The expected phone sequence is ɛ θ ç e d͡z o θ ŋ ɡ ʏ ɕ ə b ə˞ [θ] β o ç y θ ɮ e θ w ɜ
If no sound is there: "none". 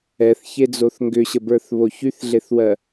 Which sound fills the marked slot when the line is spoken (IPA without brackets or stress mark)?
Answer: θ